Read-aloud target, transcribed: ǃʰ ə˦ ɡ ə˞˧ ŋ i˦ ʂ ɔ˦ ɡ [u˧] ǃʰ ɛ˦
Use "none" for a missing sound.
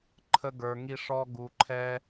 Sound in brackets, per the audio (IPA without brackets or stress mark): u˧